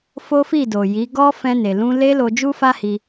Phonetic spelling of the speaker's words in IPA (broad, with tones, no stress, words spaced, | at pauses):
fo˦fi˦˨do˨ji˨˦ ɡɔ˦ fɛ̃˧ne˨lũ˧ le˦lo˧ d͡ʒu˦fa˦hi˧